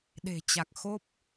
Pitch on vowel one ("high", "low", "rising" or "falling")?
low